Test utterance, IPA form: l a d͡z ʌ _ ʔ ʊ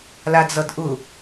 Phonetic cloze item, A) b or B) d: B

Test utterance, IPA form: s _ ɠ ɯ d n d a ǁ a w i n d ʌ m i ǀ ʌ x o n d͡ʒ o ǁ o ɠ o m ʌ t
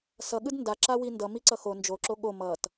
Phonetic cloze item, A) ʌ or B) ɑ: A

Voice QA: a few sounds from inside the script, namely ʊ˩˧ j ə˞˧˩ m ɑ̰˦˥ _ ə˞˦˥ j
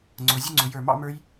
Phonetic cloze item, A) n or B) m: B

